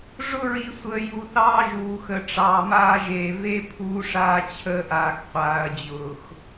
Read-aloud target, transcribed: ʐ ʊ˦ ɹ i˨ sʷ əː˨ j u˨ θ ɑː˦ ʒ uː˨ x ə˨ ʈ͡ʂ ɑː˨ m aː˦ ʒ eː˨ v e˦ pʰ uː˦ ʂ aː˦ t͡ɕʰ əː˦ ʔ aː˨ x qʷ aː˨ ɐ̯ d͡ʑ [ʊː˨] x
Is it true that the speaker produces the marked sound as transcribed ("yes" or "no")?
yes